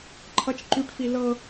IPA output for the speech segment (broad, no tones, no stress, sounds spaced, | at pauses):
ǃʰ ʌ t͡ʃ ǃ y ʈ f i l ɤ